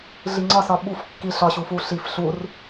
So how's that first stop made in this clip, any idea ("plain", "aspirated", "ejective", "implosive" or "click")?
click